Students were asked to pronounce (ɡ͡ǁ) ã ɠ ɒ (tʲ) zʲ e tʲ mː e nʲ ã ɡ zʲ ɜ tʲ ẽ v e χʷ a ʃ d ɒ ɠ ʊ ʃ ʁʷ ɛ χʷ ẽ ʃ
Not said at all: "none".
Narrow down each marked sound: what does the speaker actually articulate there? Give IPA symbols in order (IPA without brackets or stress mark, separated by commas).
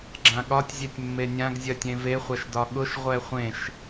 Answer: ɡ͡ǁ, tʲ